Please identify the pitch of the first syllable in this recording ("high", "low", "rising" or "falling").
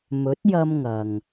rising